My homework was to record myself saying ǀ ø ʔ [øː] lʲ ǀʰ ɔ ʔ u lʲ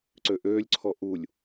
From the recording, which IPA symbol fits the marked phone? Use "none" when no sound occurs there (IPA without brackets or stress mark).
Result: øː